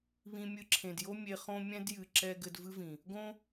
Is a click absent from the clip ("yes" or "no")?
no